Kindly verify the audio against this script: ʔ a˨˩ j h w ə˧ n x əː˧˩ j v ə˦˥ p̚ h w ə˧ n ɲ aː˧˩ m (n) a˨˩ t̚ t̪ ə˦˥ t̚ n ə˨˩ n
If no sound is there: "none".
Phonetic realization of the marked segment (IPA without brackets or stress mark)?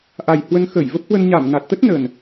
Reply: n